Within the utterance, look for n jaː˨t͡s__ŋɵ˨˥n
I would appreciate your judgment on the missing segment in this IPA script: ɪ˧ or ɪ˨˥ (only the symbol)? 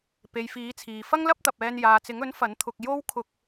ɪ˨˥